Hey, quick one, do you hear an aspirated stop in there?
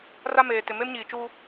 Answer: no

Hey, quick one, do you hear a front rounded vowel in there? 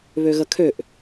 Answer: yes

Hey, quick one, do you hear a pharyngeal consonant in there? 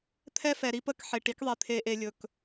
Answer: yes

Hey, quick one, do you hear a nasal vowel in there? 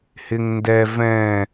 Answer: yes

